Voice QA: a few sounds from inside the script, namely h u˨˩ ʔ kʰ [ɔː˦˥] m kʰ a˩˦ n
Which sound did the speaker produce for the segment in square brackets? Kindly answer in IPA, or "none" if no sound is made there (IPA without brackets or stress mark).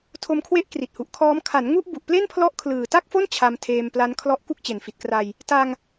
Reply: ɔː˦˥